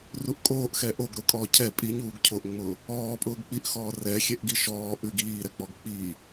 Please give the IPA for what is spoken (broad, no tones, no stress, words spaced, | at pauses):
ruʔkʼoːʔ xɛʔoɡ ɾʊkʼɔːcʰɛ pʼiɲuːɡcʰoʔŋ͡mʊː | ɔː pʼʊːɡk͡piʔxɔː rɛ xʲɛʔɡiʃɔː ʔʉɡ iːɾɛk͡pɔɡ k͡piː